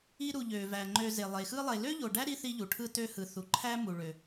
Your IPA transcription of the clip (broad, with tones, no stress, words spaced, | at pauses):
i˦ɾu˨ ʎø˩væ˩ ŋ͡ǃø˨ ze˩lˠe˩xɯ˦lˠe˨ lø˥ʎo˨ɖæ˥ɾi˦ θi˦ʎu˩ʈʰɯ˦ tø˦hɯ˨θu˨ǃʰæ˥ mu˨ɭø˨